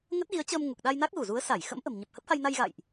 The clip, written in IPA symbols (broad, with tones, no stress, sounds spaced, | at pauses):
ŋ ə˦˥ t̚ ɣ i˨˦ ə̯ t͡ɕ əː˧ m ŋ u˨˩ k̚ ɗ a˧ j n a˦˥ k̚ ɣ u˧˩ z u˨˦ ə̯ s a˧˩ j x ə̰˧˥ m ʔ ə̤˨˩ m ɲ ə˨˩ p̚ h ə˦˥ p̚ h a˧ j n a˧ j ɣ a̰˧˨ j ʔ